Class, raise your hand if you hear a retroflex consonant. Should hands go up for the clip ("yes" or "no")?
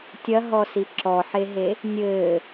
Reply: no